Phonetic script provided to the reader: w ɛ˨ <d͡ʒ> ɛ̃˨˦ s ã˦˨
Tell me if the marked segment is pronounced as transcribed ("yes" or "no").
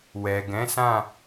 no